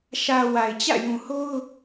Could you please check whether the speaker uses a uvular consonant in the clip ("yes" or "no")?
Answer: no